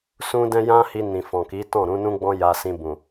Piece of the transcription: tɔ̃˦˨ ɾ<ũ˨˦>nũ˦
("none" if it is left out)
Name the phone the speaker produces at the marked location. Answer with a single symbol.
ũ˨˦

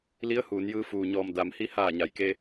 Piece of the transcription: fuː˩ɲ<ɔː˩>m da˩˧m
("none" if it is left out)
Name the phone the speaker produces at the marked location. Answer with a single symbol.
ɔː˧˩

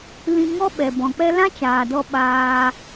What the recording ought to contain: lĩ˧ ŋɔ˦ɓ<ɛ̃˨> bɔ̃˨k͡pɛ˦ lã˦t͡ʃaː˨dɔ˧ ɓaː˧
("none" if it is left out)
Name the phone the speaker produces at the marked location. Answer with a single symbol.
ɛ˨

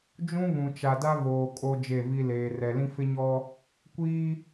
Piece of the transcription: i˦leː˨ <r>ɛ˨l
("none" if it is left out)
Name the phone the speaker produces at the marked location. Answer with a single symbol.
r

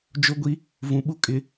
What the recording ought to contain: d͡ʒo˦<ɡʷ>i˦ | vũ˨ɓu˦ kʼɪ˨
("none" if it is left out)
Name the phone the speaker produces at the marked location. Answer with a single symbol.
ɡʷ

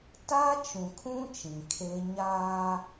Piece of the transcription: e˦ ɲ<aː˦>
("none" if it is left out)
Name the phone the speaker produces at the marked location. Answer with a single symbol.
aː˦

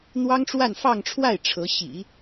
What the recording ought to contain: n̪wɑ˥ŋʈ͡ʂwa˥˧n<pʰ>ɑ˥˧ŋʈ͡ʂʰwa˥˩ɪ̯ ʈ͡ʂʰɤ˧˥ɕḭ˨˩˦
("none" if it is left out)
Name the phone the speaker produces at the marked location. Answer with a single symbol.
f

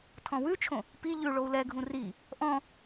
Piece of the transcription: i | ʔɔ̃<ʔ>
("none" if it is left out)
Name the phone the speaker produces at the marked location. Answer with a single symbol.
none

